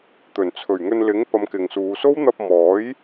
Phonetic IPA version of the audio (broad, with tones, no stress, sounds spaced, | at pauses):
t̪ ɵ˨˩ n t͡sʰ ɵ˨˩ ɥ ŋ ɵ˧ n l ɪ˨˥ ŋ p ɐ˨˧ m k ɪ˨ ŋ s uː˨˧ s o˥ w n̪ ɐ˧ p̚ m ɔː˨˥ j